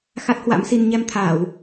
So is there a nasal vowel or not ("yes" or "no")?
no